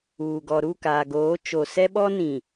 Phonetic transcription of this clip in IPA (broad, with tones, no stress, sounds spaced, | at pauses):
uː˨ ɡ ɔ˨ ɾ u˦˨ k aː˨ ɡ oː˨˦ t͡ʃ o˨ s ɛ˦ ɓ ɔ˦ n ĩ˨